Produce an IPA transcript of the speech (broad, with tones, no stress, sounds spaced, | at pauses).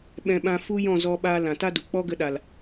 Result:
ɓ ɛ̃˧ ɓ ã˧ f u˦ j ɔ̃˦˨ z ɔ˧ ɓ aː˧ l ã˨ t a˦ d u˨ k͡p ɔ˦ ɡ ə˧ ɗ a˨ l